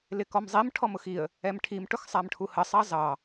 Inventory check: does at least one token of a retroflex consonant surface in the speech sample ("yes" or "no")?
yes